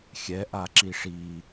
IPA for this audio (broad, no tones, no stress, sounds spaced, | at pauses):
xʲ ɛ ʔ a ǁ i ʂ i